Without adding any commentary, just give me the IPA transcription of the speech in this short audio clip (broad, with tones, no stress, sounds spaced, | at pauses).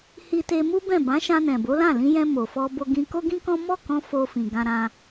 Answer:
h i˧ t e˧ m u˦ b ɛ̃˦˨ b ã˨˦ ʃ ã˧ n ɛ̃˨ b o˨˦ l ã˦˨ l ĩ˧ j ɛ̃˧ m o˨ f ɔ˧ b o˧ ɡ ĩ˧ k o˦ ɡ ĩ˦ k ɔ̃˦ m ɔ˦˨ k ɔ̃˧ f o˧ f ĩ˨ ɡ ã˧ ɾ ã˧